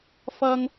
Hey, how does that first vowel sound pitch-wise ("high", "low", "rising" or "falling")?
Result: high